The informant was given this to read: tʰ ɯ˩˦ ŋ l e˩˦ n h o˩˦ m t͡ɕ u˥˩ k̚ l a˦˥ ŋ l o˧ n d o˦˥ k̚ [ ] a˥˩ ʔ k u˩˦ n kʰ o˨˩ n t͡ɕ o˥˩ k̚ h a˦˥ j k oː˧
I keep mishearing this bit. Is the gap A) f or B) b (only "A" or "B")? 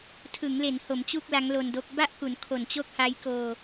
B